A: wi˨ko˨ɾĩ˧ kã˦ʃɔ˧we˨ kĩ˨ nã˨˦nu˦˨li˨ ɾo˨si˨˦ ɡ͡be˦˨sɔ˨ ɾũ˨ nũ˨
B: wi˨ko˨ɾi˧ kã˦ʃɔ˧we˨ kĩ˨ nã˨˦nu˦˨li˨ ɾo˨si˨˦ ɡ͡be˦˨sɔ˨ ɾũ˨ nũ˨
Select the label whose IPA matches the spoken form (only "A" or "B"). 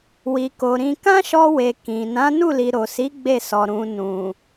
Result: A